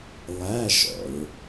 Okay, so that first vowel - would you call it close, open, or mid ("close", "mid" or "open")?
open